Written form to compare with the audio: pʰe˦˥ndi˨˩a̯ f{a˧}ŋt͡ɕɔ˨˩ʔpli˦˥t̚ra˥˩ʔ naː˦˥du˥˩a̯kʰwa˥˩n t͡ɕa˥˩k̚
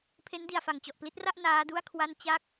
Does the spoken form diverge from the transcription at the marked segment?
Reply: yes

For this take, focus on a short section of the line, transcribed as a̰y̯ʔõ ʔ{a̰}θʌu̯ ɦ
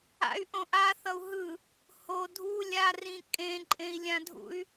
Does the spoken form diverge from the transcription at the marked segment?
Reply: yes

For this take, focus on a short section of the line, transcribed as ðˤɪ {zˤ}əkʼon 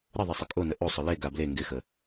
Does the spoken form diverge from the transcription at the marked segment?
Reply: yes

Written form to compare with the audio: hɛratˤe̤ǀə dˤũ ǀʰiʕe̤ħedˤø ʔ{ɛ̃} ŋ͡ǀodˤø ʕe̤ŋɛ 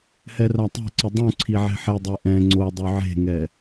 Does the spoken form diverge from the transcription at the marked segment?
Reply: no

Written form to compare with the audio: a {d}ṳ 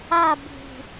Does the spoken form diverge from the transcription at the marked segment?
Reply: yes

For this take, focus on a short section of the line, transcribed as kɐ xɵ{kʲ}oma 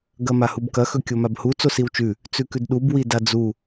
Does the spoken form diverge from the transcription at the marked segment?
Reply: no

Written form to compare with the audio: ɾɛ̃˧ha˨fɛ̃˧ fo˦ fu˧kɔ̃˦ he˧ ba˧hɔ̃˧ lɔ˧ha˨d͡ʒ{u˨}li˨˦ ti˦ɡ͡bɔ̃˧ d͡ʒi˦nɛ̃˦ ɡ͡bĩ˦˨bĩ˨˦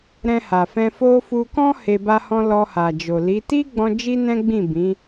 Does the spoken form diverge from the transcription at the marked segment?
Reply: yes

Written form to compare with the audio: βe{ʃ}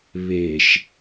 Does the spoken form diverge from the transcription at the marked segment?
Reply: no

